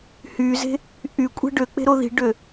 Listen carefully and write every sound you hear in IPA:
h y z e̤ | ʔ y kʷʼ e̤ ɖ ø k͡p e̤ ɾ o ð i̤ ɖ ø

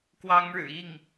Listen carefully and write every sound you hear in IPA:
k w ɑ˥ ŋ ɻ ɻ̩˨˩ i˥˩ ŋ

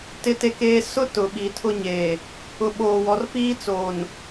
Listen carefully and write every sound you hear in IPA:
t ɪ˦ t e˦ k eː˦ s ʊ˦ t ʊ˨ ɓ i˨ tʰ ʊ˦ ɲ eː˨ | ʊ˨ ɓ oː˨ w ɔ˨ r p iː˦ t͡s oː˨ n

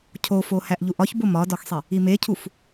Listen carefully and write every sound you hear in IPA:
cʰ o f o h æ ʔ ʎ u ʔ ɒ ç b o m ɒ d ɒ x sˤ e | i m e cʰ u f

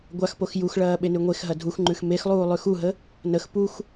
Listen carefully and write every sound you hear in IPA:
ɡʷ a x p o x j u x ɭ ɐː ɓ e n ʉ ŋʷ e x ɦ ɐ dʱ u x ŋ͡ǃ ʉ x m e x lˠ uː lˠ ʉ x u ɦ ə | n ə x p u x

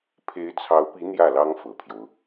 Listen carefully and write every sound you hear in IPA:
pʰ e˧˥ ɪ̯ t͡sʰ ɑ˧˥ ʊ̯ p i˧˥ n̪ j ä˥˩ l ɑ˥ ŋ f ɤ˨˩ pʰ j o˦ ʊ̯

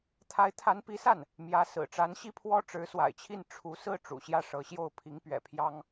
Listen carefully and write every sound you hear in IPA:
t̪ʰ a˧˥ ɪ̯ t̪ʰ a˧˥ n p i˧˥ s a˥˩ n | m j ä˧˥ s ɹ̩˨˩ ʈ͡ʂ a˧˥ n ɕ i˥˩ pʰ w ɔ˥ ʈ͡ʂ ɻ̩˧˥ s w a̰˨˩ ɪ̯ t͡ɕʰ i˥˩ n ʈ͡ʂʰ u˧˥ s ɹ̩˥˩ ʈ͡ʂ ṵ˨˩ ɕ j ä˥˩ ʂ ɤ˧˥ ɕ j o˥˩ ʊ̯ pʰ i˧˥ ŋ p ɥ ɛ̰˨˩ pʰ j ɑ˥ ŋ

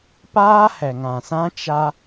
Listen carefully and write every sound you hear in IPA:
p aː˦ h ɛ˨ ŋ ã˨ s ã˦ t͡ʃ a˦

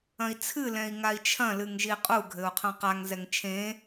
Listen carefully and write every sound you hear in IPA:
ɐ̃ i̯ t͡sʰ ɨ l ɛ̃ i̯ ŋ a i̯ t͡ʃʰ ɐ̃ l ɨ ŋ ʒ i qʼ u ɡʱ ɘ u̯ qʰ ɐ̃ q a ŋ z ɛ ŋ t͡ʃʰ ẽ

